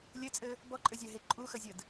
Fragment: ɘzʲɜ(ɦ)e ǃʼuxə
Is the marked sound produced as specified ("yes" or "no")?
yes